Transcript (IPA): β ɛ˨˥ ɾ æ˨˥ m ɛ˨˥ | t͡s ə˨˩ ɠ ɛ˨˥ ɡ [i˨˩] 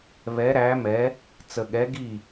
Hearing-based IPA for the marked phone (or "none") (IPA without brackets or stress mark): i˥˩